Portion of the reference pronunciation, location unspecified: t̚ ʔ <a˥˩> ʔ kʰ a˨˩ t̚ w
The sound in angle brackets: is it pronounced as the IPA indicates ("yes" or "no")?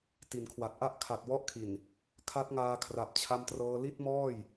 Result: yes